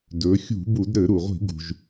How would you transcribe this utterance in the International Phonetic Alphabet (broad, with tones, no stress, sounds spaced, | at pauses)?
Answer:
d ɵ˩˧ xʲ ṳ˧˩˧ b u˧˩˧ d ɾ ɘ˧˩˧ ɾ u˩ ʁʷ i̤˧˩˧ ɡ ṳ˩ ʒ